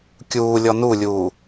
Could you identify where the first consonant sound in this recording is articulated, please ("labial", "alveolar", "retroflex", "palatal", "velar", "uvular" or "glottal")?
velar